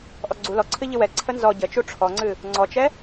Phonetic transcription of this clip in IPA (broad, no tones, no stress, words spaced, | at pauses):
ʔɔɡ͡ǀu lɔǀʰɨ ʎɨwɛ ǀʰənzɔ ɟət͡ʃu ʈ͡ʂʰɔŋ͡ǀɨ | ŋ͡ǀɔt͡ʃɛ